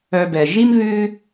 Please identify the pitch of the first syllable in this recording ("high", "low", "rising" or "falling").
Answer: low